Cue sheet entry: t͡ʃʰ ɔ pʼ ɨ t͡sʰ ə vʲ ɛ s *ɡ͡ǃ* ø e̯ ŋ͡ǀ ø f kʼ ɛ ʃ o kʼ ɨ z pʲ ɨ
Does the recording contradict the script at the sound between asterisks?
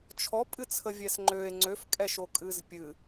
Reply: yes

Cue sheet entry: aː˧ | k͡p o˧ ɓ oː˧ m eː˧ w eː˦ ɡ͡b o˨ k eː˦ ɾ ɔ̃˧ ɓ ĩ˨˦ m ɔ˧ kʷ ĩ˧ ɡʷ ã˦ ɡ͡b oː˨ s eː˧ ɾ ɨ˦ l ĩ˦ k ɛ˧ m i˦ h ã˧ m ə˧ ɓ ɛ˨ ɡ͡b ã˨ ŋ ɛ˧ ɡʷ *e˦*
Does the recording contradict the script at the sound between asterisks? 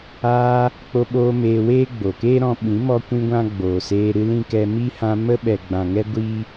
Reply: yes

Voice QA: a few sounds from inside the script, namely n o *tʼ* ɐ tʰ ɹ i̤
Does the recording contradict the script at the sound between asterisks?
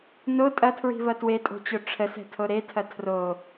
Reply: no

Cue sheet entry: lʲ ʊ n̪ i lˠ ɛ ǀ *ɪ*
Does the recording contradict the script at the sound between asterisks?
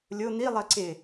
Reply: no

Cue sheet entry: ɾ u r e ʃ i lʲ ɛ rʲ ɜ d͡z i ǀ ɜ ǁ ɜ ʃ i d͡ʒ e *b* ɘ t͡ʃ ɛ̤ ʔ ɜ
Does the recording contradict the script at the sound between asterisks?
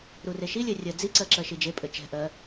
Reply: yes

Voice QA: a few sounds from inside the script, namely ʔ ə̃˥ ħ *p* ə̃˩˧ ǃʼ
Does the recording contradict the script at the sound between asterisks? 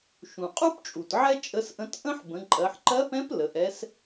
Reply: yes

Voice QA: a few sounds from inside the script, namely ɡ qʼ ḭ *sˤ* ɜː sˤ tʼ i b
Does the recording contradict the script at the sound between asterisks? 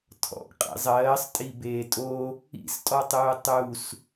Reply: yes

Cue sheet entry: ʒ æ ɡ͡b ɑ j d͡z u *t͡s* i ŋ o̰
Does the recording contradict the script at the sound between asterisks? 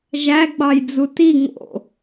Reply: yes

